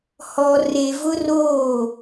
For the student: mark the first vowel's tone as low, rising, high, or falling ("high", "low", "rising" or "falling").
low